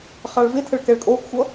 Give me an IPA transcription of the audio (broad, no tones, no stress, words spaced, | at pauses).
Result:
χaɭvɪtʰəɭ kɛɭkʼoːkxʷʌ